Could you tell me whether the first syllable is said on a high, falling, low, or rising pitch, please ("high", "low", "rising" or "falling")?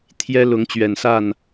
high